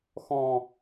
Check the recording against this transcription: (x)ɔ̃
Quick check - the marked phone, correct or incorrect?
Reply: correct